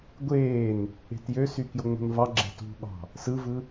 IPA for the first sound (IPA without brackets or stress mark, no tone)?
ɡʷ